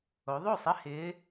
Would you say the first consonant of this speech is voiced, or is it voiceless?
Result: voiced